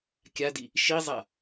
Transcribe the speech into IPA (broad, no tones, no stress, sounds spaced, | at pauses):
kʲ a d i | ʃ i zˤ a